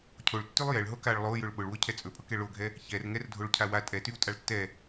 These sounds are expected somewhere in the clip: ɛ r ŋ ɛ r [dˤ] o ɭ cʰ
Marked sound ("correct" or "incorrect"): incorrect